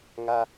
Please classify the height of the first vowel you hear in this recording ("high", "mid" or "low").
low